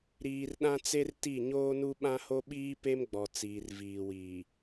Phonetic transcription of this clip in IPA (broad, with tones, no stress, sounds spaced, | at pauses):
ɾ iː˨ r ɗ ã˦ t͡s e˦ r t i˦˨ ɲ oː˦ n u˦ ɓ ã˦ h o˦ ɓ iː˦ p e˦ m ɡ͡b ɔ˨ t͡s iː˨ r v iː˨ w iː˨